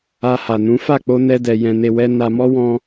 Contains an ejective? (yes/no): no